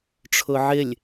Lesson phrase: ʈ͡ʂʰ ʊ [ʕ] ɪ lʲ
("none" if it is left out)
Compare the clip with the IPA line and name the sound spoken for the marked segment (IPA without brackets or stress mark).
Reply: ʕ